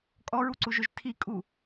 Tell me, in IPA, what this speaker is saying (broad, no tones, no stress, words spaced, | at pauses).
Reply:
kʼɔɹuǀuʒøʒ tʰikʼu